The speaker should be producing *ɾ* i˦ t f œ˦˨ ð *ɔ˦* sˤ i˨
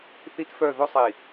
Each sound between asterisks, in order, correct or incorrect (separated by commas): incorrect, incorrect